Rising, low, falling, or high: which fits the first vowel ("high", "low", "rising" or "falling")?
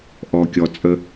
low